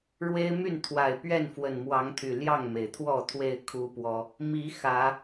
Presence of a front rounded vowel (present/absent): present